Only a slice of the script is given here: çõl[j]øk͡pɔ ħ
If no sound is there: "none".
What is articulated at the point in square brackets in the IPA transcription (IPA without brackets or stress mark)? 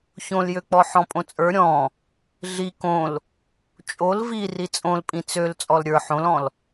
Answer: j